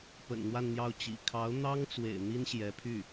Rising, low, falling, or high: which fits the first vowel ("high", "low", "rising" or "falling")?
low